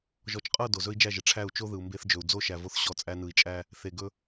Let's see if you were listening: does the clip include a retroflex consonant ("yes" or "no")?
yes